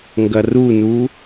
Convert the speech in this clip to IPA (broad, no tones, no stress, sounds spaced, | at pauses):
ŋ ɡ ɐ r u n u